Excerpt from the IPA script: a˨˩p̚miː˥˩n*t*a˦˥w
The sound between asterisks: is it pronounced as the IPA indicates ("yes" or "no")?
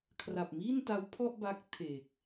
yes